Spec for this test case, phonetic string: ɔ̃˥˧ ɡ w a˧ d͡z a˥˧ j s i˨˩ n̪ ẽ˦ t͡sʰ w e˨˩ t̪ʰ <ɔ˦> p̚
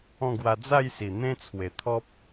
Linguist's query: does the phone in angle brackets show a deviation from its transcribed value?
no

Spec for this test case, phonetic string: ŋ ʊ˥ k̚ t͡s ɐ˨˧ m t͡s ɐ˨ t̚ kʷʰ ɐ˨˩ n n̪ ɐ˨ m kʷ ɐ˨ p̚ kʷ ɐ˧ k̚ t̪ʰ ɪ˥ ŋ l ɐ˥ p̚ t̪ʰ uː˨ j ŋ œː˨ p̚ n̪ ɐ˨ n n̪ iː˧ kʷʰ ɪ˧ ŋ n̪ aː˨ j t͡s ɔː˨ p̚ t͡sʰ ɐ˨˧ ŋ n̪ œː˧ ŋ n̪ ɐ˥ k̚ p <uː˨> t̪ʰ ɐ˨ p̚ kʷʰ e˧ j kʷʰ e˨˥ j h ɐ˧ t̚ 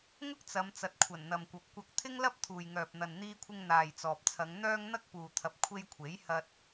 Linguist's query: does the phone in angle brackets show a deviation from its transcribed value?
no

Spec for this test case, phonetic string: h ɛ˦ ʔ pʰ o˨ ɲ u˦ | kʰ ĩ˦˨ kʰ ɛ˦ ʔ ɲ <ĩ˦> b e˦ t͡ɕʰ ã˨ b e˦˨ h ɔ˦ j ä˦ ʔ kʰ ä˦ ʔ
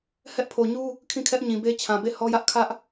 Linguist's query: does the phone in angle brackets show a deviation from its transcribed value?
yes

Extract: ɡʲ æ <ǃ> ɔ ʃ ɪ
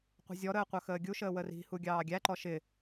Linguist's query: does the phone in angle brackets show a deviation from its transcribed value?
no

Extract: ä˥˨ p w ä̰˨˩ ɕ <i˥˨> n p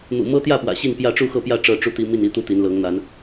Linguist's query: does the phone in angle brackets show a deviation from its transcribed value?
no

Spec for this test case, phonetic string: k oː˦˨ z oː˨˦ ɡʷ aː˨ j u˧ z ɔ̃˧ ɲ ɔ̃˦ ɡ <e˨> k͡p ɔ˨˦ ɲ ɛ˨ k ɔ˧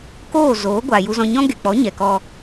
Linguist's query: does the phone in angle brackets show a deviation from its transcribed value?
no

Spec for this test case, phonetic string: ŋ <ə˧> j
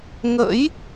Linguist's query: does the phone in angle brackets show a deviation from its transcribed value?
yes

